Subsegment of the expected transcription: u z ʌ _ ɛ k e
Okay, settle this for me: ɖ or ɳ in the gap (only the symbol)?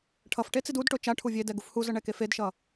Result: ɳ